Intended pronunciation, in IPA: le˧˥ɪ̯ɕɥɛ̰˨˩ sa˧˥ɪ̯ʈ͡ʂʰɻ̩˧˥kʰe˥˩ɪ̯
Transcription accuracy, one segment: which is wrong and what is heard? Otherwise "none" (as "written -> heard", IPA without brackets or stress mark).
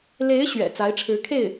s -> t͡s